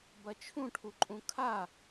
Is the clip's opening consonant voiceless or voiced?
voiced